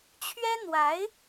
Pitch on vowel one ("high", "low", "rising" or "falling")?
high